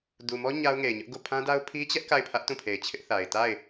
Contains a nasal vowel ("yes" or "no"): yes